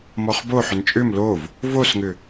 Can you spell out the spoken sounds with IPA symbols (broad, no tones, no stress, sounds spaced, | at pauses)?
m ɔ χ b o ħ ʏ n t͡ʃʼ ʏ m l o v | v o s ŋ ʏ